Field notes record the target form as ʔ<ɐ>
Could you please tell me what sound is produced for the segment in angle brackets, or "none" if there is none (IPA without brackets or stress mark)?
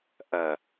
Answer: ɐ